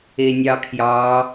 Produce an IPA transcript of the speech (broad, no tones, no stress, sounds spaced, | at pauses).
e nʲ ɑ kʰ j ɑ